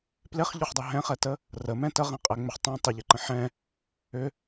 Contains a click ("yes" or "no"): yes